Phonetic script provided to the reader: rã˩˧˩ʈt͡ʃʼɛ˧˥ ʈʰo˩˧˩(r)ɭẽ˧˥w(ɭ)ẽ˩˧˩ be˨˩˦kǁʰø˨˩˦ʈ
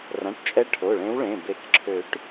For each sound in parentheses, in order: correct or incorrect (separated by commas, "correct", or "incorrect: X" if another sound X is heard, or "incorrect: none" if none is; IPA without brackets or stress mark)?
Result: incorrect: none, correct